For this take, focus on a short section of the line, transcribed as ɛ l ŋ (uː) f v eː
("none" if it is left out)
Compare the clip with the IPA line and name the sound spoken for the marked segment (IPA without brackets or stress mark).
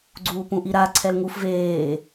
u